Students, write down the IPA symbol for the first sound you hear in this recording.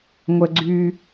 ŋʷ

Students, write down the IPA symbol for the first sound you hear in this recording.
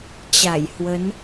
t͡ɕ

